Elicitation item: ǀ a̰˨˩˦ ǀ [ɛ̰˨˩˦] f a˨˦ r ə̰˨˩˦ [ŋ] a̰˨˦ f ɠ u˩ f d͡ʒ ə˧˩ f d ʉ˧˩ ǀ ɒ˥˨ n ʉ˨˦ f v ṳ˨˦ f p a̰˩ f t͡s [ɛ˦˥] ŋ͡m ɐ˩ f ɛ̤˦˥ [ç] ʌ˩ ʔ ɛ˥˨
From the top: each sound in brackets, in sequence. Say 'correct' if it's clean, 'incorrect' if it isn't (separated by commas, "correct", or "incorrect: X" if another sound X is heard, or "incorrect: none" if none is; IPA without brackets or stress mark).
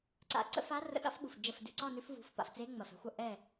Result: incorrect: ə̰˨˩˦, incorrect: ɠ, incorrect: e˦˥, incorrect: xʷ